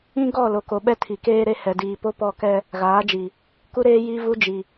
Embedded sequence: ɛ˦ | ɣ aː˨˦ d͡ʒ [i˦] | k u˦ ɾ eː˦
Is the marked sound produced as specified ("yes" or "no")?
no